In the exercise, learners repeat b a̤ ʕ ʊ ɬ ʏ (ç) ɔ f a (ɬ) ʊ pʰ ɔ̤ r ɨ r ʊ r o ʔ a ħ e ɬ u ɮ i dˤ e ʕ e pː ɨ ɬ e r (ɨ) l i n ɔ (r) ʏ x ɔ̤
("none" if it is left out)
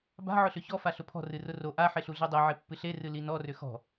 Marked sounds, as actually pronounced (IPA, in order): ç, ɬ, ɨ, r

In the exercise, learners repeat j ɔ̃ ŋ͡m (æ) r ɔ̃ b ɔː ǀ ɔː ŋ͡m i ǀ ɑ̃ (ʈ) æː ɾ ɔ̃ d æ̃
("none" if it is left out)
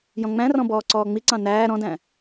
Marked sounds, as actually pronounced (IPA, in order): æ̃, n

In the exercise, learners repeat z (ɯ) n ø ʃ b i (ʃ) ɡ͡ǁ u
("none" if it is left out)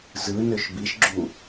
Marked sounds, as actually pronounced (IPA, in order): ɯ, ʃ

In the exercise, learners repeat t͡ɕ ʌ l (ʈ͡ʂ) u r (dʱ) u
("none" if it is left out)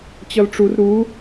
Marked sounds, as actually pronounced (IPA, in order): ʈ͡ʂ, ɾ

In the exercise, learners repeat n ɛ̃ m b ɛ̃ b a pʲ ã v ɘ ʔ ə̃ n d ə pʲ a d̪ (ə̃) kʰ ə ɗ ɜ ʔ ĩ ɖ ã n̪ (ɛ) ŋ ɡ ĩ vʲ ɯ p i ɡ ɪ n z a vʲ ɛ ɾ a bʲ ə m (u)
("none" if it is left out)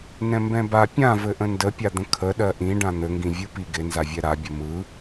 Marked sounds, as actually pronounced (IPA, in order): ə̃, ɘ, ɯ

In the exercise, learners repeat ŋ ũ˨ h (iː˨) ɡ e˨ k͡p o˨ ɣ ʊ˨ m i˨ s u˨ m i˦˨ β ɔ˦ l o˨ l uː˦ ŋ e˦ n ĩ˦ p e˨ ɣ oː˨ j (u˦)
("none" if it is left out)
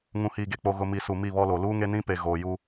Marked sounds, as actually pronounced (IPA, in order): iː˨, u˦

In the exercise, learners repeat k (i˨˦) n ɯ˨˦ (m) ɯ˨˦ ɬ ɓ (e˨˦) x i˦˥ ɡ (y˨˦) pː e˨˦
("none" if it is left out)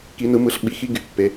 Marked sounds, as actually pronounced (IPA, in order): i˨˦, m, i˨˦, y˨˦

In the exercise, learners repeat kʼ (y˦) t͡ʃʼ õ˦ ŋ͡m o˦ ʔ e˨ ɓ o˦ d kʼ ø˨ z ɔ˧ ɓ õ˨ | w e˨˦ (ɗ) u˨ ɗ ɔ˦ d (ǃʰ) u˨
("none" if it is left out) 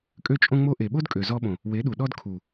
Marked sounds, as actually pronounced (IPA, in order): ø˦, ɗ, kʰ

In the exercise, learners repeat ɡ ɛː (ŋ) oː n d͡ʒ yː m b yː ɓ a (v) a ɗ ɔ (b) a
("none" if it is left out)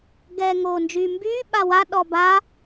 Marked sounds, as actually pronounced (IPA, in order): ŋ, w, b

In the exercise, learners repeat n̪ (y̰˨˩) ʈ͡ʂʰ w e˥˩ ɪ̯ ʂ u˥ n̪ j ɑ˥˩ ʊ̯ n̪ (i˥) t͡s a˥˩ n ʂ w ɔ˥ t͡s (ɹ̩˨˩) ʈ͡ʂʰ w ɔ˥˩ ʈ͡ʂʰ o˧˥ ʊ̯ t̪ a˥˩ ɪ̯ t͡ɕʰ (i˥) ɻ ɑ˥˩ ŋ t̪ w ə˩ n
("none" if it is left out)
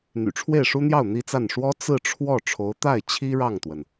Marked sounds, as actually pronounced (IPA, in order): y̰˨˩, i˥, ɹ̩˥˧, i˥

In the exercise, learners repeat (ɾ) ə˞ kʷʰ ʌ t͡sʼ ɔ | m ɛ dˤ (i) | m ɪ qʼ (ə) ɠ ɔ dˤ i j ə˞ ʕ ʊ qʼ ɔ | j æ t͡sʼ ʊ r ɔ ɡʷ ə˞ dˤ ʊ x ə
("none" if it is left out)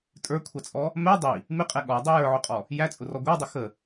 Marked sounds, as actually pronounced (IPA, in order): tʼ, i, ɛ

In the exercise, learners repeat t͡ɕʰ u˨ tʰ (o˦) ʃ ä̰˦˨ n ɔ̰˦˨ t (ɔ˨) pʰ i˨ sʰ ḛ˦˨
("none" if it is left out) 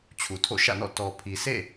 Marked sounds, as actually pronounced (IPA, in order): o̰˦˨, ɔ˨

